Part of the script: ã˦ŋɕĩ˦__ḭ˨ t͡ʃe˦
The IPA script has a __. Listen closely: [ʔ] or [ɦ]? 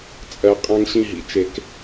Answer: ɦ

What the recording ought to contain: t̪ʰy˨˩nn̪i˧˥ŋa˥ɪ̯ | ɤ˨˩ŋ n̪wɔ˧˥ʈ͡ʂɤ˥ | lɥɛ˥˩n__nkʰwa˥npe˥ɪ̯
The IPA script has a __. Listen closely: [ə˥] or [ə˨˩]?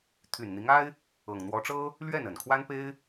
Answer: ə˨˩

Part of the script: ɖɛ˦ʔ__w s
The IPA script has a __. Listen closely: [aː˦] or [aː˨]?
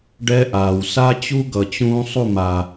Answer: aː˨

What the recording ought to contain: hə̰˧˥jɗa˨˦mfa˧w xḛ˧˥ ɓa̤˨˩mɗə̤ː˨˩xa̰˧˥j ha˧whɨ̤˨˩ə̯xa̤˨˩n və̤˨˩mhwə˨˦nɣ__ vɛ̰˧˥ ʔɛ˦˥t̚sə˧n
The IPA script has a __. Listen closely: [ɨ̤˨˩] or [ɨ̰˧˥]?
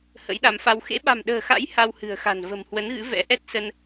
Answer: ɨ̰˧˥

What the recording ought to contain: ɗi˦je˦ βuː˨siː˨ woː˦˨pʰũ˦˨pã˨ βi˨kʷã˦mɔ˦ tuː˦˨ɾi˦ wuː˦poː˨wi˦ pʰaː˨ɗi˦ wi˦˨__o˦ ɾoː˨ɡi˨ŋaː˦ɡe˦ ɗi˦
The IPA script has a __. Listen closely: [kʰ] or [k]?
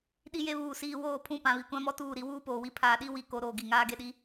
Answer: k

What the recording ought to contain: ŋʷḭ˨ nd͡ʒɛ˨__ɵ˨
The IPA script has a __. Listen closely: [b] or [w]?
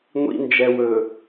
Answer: w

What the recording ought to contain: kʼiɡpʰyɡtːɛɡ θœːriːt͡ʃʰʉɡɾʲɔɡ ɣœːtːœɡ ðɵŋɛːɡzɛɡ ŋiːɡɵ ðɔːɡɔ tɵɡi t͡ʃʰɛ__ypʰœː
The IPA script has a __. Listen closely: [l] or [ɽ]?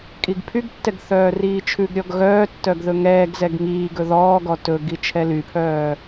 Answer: l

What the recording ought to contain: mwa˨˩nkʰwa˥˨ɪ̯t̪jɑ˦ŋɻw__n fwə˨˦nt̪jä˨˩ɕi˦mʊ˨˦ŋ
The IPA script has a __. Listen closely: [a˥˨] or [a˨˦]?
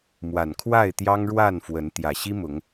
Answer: a˥˨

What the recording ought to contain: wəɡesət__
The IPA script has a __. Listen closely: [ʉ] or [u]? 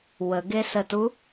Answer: u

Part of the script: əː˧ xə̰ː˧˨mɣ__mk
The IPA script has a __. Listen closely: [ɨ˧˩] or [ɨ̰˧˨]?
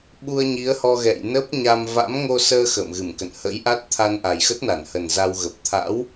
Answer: ɨ˧˩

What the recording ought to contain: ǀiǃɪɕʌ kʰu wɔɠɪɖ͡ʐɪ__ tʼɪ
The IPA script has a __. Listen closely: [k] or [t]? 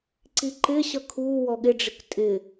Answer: k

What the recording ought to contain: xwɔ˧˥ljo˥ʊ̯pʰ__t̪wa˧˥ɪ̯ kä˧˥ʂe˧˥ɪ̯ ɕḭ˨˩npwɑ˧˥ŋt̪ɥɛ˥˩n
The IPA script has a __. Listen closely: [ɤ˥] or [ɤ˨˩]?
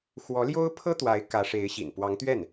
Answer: ɤ˥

